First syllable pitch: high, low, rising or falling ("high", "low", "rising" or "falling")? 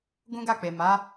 high